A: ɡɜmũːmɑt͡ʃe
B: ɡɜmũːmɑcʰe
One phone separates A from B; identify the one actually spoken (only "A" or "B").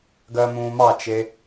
A